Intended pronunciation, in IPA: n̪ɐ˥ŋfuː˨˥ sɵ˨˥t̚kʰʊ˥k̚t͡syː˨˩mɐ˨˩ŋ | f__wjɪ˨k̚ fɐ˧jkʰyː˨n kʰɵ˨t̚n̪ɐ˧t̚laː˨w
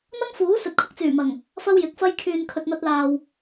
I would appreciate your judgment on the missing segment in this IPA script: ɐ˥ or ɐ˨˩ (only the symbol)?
ɐ˥